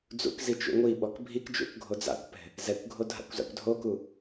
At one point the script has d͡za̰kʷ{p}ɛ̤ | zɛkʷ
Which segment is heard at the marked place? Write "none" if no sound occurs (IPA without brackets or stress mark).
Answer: p